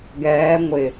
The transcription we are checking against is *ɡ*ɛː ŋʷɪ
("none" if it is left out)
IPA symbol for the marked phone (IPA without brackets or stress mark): ɡ